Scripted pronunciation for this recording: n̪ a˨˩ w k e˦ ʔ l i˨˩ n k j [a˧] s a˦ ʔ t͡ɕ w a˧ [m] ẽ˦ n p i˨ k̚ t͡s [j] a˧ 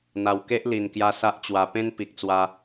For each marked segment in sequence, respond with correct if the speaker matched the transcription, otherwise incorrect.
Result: correct, incorrect, incorrect

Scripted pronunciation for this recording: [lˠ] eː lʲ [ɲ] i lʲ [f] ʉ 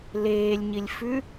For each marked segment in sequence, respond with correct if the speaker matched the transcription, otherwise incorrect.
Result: incorrect, correct, correct

